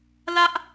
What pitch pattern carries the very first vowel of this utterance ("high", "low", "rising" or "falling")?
high